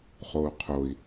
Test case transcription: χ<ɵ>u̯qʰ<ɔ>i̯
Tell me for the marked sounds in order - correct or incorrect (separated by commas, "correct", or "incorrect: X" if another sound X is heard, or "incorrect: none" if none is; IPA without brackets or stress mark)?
incorrect: o, incorrect: o